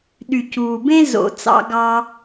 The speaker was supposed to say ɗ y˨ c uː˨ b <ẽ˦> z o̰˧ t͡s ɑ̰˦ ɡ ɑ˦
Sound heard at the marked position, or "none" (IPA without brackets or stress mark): ẽ˦